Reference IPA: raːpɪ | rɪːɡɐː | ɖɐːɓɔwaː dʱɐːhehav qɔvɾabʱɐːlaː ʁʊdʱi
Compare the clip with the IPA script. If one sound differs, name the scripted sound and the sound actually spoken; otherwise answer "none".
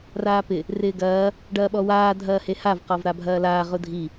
none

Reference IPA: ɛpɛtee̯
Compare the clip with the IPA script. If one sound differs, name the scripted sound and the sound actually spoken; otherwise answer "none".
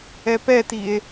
e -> i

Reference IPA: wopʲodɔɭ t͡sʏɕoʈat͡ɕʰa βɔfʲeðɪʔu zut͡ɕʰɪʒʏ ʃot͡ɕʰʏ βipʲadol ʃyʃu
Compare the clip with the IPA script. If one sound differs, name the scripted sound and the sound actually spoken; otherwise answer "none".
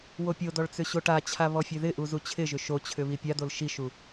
y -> i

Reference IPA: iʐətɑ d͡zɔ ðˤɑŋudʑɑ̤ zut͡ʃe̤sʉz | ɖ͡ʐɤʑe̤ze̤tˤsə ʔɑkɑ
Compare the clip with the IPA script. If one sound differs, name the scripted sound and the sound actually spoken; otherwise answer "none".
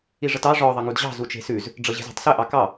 d͡z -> ʐ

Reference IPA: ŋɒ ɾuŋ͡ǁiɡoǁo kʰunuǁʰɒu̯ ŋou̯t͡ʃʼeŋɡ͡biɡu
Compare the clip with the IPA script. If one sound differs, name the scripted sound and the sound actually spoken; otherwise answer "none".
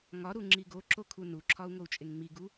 ɡ͡b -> ŋ͡m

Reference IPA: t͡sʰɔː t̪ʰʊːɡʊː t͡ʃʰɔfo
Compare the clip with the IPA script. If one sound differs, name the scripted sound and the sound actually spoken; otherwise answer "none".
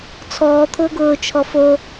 none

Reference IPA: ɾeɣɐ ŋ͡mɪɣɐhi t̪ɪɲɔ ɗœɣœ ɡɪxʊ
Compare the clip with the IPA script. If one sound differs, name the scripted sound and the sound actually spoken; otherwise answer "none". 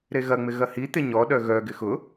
none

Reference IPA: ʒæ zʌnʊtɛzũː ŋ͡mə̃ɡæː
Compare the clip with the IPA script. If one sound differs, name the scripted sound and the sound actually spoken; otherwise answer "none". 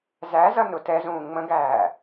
ʒ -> z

